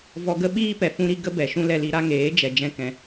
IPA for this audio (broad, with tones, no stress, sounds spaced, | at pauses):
v ɔ˧ ɡ ə˦ ɓ iː˦ p ɛ˨ f ũ˧ ɾ i˧ ɡ ə˦ b ɛ˨ ʃ ũ˦ l ɛ˧ l i˧ ɾ a˦ ŋ eː˨˦ d͡ʒ ɛ˨ d͡ʒ ɛ̃˦ k ɛ̃˧